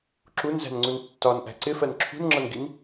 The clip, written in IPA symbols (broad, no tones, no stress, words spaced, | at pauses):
ǁunzæ̤nŋ͡ǀun tːɒnʔæ̤ ǀɪfɜn ǁʰṳnŋ͡ǁʌnɡin